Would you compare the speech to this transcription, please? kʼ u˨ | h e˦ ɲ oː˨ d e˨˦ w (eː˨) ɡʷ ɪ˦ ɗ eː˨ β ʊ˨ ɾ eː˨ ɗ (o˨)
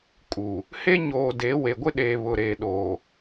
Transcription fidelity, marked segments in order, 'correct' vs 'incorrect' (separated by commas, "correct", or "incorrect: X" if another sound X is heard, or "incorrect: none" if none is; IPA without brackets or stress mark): incorrect: e˨, incorrect: oː˨